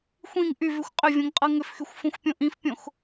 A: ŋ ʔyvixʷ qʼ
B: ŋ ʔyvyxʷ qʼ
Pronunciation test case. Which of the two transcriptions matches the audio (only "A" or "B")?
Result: B